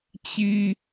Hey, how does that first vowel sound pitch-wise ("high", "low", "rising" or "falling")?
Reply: high